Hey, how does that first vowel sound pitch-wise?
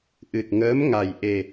low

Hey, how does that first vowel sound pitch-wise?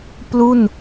falling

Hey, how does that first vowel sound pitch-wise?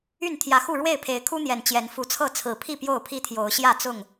falling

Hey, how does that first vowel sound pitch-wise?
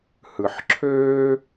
low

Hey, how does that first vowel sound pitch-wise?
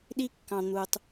high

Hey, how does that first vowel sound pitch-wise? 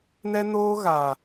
high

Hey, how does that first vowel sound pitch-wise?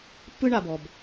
high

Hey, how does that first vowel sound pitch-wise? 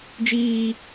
high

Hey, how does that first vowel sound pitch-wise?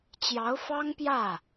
rising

